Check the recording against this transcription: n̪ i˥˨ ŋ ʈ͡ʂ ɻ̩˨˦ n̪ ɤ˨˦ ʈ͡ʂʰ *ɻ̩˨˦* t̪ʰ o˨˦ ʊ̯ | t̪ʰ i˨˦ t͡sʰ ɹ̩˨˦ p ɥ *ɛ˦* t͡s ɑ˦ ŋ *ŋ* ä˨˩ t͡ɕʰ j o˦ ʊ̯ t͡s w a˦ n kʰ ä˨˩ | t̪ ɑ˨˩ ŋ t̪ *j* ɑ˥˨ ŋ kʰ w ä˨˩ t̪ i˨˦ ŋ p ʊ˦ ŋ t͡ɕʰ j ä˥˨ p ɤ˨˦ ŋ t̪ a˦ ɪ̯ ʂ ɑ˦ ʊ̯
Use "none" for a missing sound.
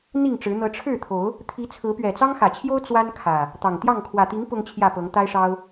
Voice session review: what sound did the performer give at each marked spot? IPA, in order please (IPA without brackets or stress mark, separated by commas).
ɻ̩˥˨, ɛ˨˩, x, j